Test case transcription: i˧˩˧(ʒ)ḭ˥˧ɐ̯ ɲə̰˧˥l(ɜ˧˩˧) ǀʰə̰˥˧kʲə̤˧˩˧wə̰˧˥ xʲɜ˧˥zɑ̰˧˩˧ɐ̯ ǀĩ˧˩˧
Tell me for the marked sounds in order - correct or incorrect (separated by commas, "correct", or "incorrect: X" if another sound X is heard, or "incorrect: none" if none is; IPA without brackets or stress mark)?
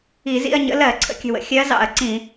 incorrect: z, correct